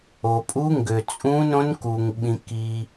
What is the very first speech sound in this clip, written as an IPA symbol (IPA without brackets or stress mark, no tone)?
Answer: o